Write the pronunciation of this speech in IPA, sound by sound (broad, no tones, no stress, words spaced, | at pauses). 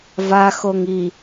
va xoŋi